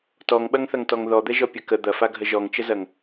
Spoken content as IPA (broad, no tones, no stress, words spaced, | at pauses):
tɔŋɓɐŋθɐŋtɔŋ ðɔd̪ɛʒɔpʲɐ kə d̪ɐfaɡʱə ʒɔŋt͡ʃəzɐŋ